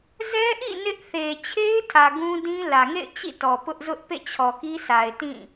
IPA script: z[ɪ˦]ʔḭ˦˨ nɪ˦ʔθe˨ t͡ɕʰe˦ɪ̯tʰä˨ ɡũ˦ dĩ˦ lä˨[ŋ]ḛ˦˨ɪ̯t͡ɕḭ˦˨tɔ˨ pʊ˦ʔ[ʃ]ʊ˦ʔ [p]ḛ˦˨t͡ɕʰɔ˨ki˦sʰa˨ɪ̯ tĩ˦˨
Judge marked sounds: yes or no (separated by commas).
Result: no, yes, no, yes